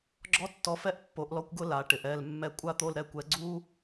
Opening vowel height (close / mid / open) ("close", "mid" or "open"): mid